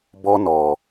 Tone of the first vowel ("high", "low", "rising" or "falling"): high